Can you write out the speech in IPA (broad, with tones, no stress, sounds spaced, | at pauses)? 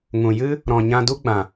ŋ ũ˨ j ɨ˦ | ɾ ɔ̃˨ ɲ ã˧ d u˦ ɡ͡b ã˨